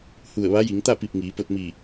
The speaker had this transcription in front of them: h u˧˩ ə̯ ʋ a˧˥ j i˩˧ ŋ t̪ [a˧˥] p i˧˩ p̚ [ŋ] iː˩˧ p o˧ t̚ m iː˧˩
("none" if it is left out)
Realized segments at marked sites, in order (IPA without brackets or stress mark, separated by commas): a˥˨, ŋ